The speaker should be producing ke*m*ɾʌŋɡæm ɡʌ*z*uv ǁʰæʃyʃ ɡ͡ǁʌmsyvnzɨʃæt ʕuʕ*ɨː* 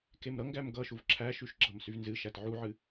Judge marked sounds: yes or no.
yes, no, no

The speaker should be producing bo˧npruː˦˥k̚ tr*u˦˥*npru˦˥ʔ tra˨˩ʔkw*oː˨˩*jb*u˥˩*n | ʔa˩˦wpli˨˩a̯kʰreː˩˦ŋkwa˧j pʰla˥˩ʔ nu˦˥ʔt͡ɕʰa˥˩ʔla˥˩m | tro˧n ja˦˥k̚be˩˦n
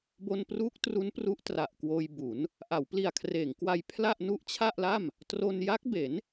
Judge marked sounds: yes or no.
yes, no, no

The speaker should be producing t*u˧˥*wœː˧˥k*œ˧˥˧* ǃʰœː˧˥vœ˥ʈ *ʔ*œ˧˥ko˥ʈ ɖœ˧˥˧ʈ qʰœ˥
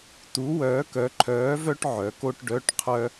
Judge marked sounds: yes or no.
yes, no, no

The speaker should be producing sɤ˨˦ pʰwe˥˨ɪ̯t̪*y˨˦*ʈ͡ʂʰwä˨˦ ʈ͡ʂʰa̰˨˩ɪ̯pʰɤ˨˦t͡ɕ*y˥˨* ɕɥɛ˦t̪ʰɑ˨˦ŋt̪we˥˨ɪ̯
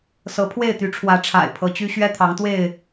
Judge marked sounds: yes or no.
yes, no

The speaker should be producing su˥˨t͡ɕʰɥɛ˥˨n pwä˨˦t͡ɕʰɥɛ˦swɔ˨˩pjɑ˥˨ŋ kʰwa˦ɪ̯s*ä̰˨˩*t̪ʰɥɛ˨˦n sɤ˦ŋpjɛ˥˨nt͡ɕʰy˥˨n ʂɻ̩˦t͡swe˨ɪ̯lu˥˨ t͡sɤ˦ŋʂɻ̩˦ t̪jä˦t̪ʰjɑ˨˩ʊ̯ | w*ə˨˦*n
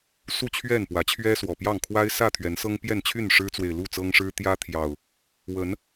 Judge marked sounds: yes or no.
no, yes

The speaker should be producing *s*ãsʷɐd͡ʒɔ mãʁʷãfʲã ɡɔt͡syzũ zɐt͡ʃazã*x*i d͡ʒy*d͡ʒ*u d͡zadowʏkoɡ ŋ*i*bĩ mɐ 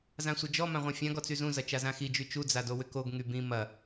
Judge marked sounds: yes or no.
no, yes, no, no

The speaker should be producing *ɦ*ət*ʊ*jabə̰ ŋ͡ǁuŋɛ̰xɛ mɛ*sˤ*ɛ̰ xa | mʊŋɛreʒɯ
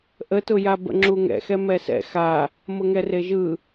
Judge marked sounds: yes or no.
no, yes, no

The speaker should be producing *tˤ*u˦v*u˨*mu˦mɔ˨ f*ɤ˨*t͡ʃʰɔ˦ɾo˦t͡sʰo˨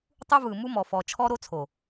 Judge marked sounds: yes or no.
yes, no, no

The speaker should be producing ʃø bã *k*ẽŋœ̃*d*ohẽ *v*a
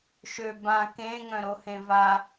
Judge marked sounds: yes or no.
yes, no, yes

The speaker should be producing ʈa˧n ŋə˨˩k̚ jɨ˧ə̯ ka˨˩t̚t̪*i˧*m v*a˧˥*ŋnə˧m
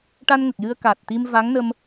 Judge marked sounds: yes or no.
yes, yes

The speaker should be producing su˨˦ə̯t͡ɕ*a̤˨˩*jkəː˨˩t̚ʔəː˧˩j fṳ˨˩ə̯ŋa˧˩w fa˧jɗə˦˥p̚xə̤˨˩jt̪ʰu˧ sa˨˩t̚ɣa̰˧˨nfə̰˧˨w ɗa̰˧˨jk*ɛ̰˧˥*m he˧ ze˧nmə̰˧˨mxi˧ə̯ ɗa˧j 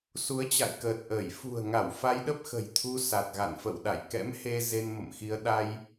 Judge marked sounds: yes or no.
no, yes

